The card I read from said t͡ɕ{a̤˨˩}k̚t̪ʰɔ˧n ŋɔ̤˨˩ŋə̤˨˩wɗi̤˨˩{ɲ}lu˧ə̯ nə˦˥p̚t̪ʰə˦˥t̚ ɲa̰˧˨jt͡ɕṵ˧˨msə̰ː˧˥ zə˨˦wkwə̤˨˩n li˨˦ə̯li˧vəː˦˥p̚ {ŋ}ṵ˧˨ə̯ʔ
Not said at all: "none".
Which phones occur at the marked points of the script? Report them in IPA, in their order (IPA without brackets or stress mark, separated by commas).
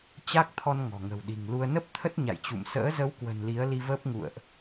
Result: a˦˥, ŋ, ŋ